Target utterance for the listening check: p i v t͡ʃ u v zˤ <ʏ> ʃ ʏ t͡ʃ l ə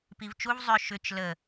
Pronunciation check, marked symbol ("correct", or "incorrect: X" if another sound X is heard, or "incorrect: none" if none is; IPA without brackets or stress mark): correct